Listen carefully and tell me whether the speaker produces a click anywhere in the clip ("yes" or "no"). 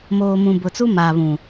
no